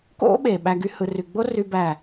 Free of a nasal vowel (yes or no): yes